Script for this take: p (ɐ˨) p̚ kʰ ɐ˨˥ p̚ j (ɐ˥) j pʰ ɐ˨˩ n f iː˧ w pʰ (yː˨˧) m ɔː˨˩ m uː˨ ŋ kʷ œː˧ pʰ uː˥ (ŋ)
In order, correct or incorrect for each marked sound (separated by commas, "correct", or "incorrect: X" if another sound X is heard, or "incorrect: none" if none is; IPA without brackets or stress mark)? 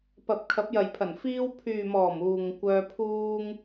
correct, incorrect: ɐ˨, incorrect: yː˨, correct